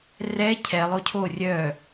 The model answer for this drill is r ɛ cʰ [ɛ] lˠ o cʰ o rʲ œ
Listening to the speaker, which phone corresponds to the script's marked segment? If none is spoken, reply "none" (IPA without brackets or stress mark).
ɛ